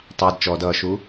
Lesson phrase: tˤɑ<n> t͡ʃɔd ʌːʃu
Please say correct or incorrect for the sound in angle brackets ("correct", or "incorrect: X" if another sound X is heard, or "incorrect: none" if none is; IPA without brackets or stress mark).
incorrect: d